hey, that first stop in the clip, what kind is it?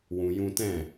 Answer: plain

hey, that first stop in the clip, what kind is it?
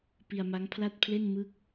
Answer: plain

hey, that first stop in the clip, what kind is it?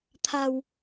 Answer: aspirated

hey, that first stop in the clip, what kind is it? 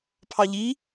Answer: aspirated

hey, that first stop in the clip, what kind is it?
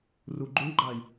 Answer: click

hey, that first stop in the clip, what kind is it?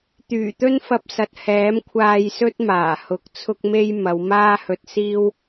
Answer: plain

